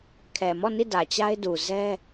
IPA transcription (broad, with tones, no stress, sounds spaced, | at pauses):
kʰ ɛ˨ m ɔ˦˨ n i˦˨ d ä˨ t͡ɕ a˦ ɪ̯ d u˨ z ɛ˦